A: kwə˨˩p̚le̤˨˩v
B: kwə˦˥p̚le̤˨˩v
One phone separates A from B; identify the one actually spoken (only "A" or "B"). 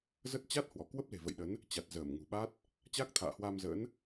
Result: B